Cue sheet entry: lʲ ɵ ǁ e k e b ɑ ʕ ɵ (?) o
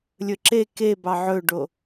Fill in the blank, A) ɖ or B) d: A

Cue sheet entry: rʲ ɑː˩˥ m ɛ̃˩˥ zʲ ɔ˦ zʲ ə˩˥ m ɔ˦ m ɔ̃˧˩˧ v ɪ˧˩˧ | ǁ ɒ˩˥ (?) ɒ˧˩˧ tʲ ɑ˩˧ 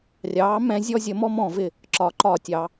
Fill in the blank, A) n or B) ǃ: B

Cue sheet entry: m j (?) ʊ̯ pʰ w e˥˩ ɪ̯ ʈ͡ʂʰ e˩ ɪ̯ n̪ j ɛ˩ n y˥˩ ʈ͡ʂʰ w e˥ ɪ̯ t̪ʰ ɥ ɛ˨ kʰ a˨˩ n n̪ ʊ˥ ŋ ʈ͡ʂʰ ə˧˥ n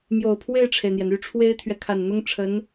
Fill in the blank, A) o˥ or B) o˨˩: B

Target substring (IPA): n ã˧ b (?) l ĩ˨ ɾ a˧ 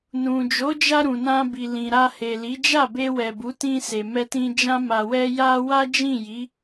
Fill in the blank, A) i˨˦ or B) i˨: B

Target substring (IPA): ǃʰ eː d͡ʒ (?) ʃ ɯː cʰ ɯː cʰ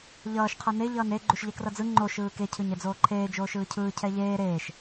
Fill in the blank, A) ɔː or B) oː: B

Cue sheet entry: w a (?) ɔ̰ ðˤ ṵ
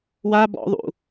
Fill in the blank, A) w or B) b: B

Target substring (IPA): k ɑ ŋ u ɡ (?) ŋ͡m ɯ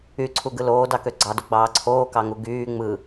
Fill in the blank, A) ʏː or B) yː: B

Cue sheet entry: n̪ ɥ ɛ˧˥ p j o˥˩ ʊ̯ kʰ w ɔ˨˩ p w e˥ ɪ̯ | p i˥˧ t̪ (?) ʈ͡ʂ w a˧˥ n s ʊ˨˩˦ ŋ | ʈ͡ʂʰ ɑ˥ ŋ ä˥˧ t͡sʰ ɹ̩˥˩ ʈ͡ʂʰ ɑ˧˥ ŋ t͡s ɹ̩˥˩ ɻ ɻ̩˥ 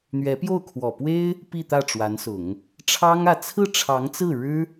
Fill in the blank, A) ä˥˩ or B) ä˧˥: A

